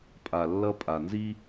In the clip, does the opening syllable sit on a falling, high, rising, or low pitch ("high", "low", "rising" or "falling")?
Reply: low